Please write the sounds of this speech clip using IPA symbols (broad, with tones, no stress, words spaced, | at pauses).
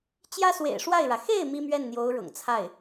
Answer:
t͡ɕjä˥swḛ˨˩ɪ̯ʂwa˥˩ɪ̯ɻä˩ xe˥˩ɪ̯ mi˥mɥɛ˥˩nn̪jo˧˥ʊ̯ ɻʊ̰˨˩ŋt͡sʰa˥˩ɪ̯